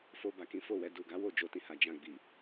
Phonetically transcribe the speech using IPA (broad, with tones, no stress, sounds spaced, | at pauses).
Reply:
f o˧ b a˨ k ĩ˨˦ f o˦˨ w ɛ˧ d u˨ ɡ a˨˦ w o˦˨ d͡ʒ o˧ t ĩ˧ h a˨ d͡ʒ ã˧ ɡ͡b i˨